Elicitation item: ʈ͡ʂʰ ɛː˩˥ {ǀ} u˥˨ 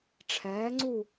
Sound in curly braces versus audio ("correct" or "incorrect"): incorrect